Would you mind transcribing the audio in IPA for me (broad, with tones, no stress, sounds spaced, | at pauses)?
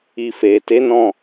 i˨ f e˨ t e˨˦ n ɔ̃˦˨